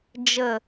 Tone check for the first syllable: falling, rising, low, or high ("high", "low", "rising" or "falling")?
low